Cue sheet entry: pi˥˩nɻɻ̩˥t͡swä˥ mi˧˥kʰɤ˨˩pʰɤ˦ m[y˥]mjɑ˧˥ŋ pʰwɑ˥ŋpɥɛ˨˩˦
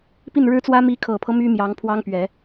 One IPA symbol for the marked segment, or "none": y˥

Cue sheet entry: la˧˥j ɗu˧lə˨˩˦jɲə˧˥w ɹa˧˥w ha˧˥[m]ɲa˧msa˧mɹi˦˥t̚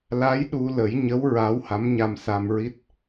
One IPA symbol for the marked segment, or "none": m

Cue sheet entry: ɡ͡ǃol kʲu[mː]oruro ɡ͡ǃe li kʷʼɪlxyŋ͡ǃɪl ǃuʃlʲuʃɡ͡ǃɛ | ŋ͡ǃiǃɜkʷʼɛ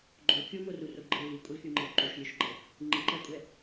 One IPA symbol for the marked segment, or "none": m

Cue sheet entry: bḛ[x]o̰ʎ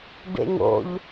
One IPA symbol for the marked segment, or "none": ŋ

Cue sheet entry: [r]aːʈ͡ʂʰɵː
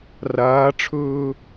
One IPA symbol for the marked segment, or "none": r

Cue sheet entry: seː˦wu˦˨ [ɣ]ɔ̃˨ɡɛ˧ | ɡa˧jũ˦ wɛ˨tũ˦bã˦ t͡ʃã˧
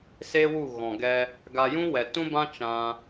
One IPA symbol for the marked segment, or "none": ɣ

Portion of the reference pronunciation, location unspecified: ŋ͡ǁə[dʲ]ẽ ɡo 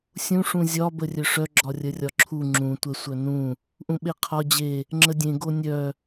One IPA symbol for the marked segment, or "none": dʲ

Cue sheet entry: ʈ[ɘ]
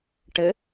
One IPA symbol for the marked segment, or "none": ɘ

